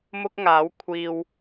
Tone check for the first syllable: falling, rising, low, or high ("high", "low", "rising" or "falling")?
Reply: high